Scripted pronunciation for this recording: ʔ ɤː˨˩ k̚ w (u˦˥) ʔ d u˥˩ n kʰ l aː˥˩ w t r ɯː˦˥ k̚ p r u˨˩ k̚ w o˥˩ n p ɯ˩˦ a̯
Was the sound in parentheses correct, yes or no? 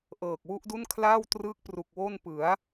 yes